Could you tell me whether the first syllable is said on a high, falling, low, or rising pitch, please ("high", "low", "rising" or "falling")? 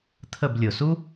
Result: falling